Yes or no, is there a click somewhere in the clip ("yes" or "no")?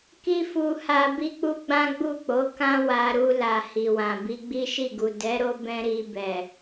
no